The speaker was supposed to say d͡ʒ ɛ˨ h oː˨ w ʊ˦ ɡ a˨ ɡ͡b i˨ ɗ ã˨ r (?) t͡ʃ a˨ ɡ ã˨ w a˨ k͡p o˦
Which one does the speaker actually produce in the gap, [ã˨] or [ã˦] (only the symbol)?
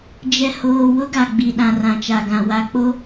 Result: ã˨